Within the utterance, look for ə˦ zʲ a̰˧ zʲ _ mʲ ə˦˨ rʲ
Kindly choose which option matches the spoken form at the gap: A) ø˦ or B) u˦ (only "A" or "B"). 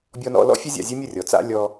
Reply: A